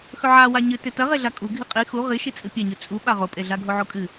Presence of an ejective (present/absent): present